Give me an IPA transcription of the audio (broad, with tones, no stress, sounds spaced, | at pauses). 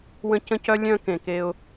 w ə̃˦ c ə̃˦ c œ˦ lʲ œ̃˦ k ẽ˨ k e˦ ʊ̯